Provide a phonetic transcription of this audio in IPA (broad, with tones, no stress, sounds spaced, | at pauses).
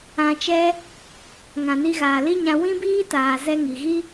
ã˧ t͡ʃ ɛ˦ | ŋ ã˨ n i˧ ɣ aː˨ l i˦ ɲ ã˧ w ĩ˦ b iː˦ t aː˨ z ɛ˧ ŋ i˨ ɣ i˦